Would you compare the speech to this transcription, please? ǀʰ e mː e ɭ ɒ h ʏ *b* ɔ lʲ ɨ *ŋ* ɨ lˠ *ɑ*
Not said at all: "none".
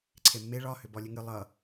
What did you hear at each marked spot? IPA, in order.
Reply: b, ŋ, ʌ

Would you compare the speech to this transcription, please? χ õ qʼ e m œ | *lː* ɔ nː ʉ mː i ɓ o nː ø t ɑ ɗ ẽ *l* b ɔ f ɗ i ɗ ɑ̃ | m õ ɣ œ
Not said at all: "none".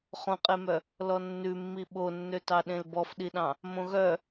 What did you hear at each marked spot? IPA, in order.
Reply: l, l

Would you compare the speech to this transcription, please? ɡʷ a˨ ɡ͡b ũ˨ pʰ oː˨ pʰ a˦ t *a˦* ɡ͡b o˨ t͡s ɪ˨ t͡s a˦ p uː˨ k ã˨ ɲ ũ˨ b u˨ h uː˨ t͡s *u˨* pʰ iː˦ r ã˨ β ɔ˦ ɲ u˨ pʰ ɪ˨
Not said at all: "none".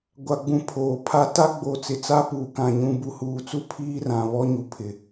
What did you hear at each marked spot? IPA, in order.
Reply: a˦, u˦

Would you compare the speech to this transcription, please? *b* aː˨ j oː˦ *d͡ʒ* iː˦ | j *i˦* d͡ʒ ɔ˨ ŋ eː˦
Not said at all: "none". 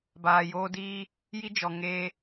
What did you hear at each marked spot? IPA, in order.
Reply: b, d, i˦

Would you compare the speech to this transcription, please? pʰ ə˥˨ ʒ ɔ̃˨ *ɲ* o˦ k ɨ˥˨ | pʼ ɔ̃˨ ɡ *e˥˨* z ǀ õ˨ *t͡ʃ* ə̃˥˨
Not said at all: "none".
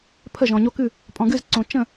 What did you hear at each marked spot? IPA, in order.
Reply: ɲ, ɨ˥˨, t͡ʃ

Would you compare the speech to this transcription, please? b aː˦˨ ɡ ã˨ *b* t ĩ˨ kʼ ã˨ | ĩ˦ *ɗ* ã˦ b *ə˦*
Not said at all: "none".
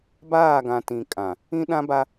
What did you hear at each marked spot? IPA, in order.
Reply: none, ɗ, a˦

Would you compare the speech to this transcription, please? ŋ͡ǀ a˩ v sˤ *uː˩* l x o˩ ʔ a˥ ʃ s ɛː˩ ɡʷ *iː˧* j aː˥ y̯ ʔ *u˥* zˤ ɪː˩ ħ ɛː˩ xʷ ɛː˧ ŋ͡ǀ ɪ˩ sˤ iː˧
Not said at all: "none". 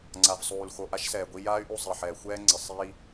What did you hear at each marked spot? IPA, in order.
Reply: uː˩, i˧, u˧

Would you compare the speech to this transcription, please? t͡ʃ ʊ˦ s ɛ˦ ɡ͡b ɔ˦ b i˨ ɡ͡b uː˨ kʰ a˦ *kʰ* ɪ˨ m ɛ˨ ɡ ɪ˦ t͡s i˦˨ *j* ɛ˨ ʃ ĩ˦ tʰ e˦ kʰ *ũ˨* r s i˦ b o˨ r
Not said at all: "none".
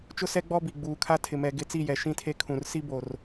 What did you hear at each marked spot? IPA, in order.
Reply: tʰ, j, ũ˨

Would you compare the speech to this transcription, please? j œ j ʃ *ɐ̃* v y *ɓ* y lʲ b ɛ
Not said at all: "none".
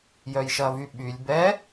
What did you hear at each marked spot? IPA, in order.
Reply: ɐ, ɓ

